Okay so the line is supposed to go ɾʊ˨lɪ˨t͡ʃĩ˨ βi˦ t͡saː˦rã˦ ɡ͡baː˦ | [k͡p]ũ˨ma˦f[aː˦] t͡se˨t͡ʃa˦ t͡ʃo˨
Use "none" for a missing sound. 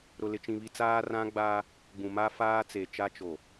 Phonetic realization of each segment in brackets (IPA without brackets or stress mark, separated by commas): ɡ͡b, aː˦